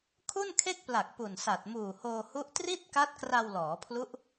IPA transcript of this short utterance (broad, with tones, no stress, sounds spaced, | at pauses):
kʰ u˥˩ n kʰ e˥˩ k̚ p l a˨˩ k̚ p u˨˩ n s a˨˩ t̚ m uː˨˩ h oː˧ h u˦˥ ʔ t r i˥˩ t̚ k a˦˥ t̚ k r a˧ w l ɔː˩˦ pʰ l u˦˥ ʔ